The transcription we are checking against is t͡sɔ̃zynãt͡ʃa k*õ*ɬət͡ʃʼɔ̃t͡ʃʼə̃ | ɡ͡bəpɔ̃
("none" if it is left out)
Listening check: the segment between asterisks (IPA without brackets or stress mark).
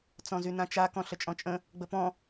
ɔ̃